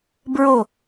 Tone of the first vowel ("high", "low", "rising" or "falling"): low